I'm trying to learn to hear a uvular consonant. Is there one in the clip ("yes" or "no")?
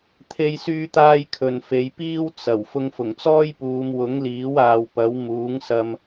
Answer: no